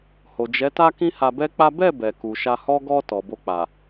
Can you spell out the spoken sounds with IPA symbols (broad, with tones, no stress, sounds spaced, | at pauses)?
h o˨ d͡ʒ ɛ˨˦ t a˦ k ĩ˦ h a˧ b ɛ˦ k͡p a˦ b ɛ˦˨ b ɛ˨ k u˨ ʃ a˧ h ɔ˦ ɡ ɔ˧ t ɔ˨ b o˧ k͡p a˨